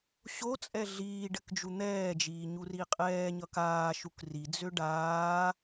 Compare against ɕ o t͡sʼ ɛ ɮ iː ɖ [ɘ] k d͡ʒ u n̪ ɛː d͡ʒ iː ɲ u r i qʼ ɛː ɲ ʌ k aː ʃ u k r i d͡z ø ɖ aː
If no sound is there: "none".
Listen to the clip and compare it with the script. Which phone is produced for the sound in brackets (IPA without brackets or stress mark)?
ɘ